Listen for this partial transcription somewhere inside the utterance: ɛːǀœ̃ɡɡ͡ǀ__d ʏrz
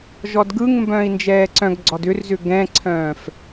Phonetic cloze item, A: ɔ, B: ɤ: A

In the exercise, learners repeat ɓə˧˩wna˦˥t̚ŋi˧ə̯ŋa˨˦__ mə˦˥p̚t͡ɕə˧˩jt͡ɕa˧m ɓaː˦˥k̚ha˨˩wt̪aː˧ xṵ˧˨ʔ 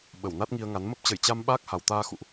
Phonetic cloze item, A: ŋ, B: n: B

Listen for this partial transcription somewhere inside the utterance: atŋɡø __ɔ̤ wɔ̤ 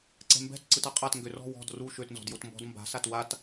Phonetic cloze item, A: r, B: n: A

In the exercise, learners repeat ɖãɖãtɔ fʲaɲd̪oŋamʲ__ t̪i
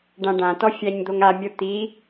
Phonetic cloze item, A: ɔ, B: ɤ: B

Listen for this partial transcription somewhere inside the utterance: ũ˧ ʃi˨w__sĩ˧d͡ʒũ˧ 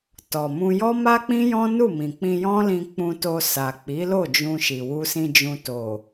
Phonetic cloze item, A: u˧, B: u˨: A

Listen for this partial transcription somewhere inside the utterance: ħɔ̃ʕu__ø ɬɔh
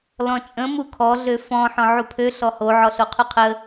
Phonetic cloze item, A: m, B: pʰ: B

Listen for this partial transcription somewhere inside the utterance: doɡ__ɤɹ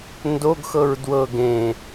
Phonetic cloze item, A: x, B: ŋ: A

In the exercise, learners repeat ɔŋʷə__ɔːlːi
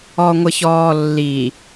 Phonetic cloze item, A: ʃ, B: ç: B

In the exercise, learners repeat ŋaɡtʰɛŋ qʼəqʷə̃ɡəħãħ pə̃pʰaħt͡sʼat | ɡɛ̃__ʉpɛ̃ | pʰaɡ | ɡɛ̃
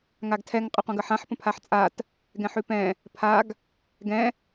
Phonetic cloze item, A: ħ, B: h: A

